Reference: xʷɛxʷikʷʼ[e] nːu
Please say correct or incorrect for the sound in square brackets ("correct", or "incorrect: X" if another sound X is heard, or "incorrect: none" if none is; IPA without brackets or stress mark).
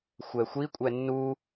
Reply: incorrect: ɛ